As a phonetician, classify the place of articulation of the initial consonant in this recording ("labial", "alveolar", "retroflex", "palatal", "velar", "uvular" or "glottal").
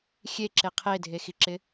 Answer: velar